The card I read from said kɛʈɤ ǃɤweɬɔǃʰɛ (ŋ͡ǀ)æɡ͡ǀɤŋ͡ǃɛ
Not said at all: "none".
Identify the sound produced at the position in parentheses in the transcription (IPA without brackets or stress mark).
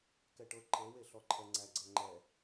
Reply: ŋ͡ǀ